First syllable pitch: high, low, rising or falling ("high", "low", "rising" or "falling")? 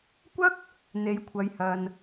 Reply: high